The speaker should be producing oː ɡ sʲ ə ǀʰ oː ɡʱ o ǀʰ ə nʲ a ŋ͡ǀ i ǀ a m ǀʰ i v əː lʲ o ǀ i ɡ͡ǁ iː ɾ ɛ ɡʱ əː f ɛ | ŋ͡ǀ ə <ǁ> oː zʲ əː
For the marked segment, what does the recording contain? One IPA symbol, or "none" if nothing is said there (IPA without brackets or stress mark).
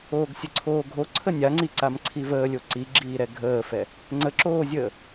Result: ǁ